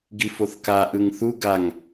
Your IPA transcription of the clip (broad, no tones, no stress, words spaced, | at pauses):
ɡifoθka ʔɯŋθu ɡaŋ